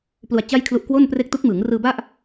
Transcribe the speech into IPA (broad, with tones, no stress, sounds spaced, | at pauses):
p l u˧ a̯ t͡ɕ a˥˩ j kʰ l u˦˥ ʔ k w o˥˩ n p r e˥˩ k̚ t u˦˥ k̚ m ɯː˩˦ ŋ r ɯː˧ b a˥˩ ʔ